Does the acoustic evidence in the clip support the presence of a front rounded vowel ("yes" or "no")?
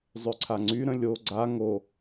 yes